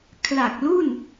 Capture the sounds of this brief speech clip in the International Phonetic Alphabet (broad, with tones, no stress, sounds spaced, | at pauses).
kʰ l a˨˩ k̚ l u˥˩ n